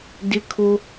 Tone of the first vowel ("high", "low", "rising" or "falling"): high